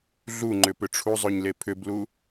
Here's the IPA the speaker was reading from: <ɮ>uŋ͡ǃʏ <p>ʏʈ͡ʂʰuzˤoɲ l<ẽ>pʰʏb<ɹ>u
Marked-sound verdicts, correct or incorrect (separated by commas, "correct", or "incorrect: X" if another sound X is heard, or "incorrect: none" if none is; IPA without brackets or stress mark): correct, correct, incorrect: e, incorrect: l